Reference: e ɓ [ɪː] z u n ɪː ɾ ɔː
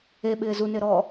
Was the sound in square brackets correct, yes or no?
yes